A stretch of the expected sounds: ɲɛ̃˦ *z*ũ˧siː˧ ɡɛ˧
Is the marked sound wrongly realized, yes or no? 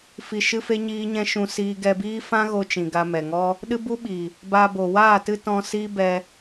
yes